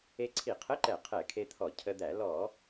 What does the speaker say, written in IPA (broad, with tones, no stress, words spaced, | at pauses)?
e˧ǀʰi˧˩˧qʰə˧˥˧ǃɛ˧˩˧ qʰɛ˧˩˧kʰe˧t̪ʰɔ˧˩˧ cʰə˧d̪æ˧˩˧ lɔ˧˩˧